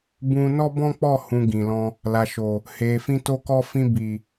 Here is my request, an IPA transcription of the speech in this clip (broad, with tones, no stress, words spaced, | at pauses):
bũ˧ nɔ˦bɔ̃˦k͡pɔ˦˨hũ˨ ɡĩ˨lɔ̃˧ | la˨ʃo˨ | he˨fĩ˧ to˧kɔ˧ fĩ˧bi˨